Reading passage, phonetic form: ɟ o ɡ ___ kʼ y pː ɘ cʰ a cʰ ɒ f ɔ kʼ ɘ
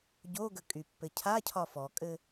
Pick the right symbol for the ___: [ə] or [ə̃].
ə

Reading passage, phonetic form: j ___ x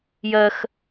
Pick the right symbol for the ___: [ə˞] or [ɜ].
ɜ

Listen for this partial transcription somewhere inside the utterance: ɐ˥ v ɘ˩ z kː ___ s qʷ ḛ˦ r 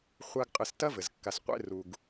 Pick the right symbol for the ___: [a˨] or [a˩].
a˨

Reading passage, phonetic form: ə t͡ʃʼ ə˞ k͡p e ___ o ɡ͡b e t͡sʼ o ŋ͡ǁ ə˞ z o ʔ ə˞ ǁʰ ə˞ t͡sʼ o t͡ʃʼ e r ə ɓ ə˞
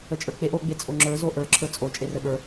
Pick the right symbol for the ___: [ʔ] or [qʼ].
ʔ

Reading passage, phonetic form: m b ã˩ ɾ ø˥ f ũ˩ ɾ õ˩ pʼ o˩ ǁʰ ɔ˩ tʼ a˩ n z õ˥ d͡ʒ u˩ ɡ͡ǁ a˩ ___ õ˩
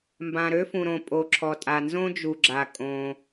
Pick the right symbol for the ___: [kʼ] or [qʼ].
kʼ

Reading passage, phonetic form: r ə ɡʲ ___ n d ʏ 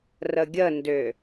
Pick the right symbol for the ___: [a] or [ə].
ə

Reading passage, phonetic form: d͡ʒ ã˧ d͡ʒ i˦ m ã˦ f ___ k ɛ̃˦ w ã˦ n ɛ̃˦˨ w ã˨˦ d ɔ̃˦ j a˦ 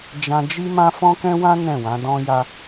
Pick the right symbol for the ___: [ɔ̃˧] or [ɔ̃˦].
ɔ̃˦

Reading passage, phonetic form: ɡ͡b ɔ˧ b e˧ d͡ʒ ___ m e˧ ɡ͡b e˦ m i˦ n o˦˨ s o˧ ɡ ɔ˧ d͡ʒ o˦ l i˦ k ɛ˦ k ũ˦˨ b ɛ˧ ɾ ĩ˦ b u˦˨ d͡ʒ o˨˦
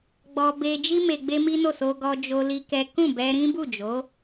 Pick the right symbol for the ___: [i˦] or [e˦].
i˦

